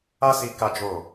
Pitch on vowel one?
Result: high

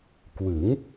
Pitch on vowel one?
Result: rising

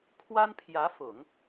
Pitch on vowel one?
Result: high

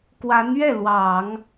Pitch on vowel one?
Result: rising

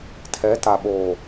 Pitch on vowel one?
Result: rising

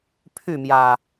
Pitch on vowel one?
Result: falling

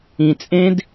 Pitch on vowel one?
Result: low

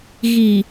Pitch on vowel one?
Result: low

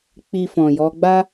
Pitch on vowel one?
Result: low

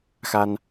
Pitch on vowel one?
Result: high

